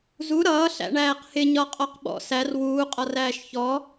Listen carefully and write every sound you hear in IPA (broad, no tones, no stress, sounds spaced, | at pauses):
z u ɾ ʌː ɬ æ̰ ɳ æː q h ɪ ɲ ɒ qʼ ɔ q ɓ ɔ̰ s æ r w uː qʼ ɒ r æː ʃ ç ɔ